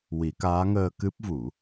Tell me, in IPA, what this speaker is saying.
w i˨˩˦ k aː˧˥ ŋ əː˧ k ɨ˦˥ p̚ v u˨˩˦

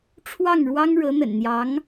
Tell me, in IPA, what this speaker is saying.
ʈ͡ʂʰ w ɑ˥˩ ŋ ɻ w ɑ˥ ŋ ɻ ɤ˧˥ n̪ ə̰˨˩ n n̪ j ɑ˧˥ ŋ

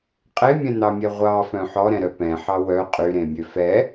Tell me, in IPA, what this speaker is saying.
qʼ e mʲ ɛ̃ n̪ ɑ mʲ ɛ ʁʷ ɑ f œ̃ ħ ɔ ɾ ɛ̃ ɾ œ p ɛ̃ ħ ɑ w œ qʼ y ɾ ẽ mʲ ø f ɛ

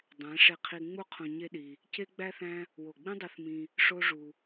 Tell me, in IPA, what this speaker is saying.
dˤ æ̃˨˦ ʂ e˧ qʰ i˧ ŋ͡m u˦ qʰ õ˧ ɲ e˦ ɗ i˧ | c e˦ ɡ͡b æ˦ θ æ̃˦ | w o˨ ɡ͡b ĩ˦ dˤ i˧ θ m ĩ˧ | ʂ o˦ ʐ u˧

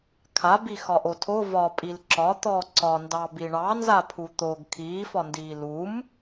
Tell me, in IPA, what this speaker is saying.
kʰ a b i x ɒ ʔ o tʰ o v ɒ pʼ i l ǁ ɒ t̪ ɔ ǀ ɒ n d ɑ b i ɳ ɑ n z a pʰ u t̪ o ɡ kʰ iː f ɒ n d iː l u m

